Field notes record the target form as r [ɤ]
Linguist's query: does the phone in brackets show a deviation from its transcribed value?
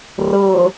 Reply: no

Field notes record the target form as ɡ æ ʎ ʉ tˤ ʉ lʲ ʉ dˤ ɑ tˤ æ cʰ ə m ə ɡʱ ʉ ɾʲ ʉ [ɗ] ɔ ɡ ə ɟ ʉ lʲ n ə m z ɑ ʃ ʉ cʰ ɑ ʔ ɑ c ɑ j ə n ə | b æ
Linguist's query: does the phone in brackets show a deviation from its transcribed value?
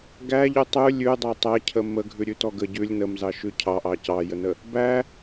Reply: yes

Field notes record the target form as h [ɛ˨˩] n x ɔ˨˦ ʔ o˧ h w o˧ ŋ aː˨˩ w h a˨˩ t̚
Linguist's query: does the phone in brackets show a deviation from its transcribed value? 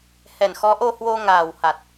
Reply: no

